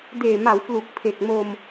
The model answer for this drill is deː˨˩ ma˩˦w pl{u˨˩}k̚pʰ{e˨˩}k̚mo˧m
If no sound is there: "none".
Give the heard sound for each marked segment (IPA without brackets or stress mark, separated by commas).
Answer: u˨˩, e˨˩